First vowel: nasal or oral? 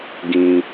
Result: nasal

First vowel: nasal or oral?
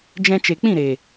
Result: nasal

